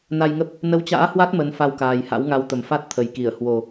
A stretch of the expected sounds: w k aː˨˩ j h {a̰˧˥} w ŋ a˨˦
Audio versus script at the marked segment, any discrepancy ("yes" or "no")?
no